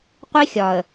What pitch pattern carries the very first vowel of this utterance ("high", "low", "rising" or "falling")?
high